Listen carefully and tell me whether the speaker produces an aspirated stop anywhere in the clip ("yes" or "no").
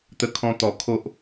yes